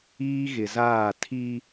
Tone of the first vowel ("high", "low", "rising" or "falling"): high